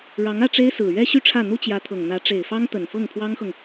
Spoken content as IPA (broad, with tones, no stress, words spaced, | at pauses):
ɻɑ˧˥ŋä˥˩ʈ͡ʂe˥ɪ̯ sɹ̩˨˩ ɥɛ˥ɕy˥˧ʈ͡ʂʰä˥˩n̪u˥ t͡ɕjä˧˥t̪ʰɤ˨˩ŋn̪ä˧˥ ʈ͡ʂe˨˩ɪ̯fɑ˥ŋt̪ə˨˩n fɤ˥˩ŋpʰwɑ˥ŋxɤ˨ŋ